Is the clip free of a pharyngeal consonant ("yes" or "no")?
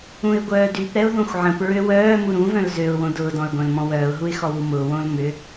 no